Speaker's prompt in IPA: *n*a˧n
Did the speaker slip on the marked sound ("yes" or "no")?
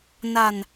no